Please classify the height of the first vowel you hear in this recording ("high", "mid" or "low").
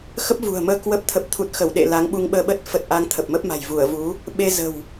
mid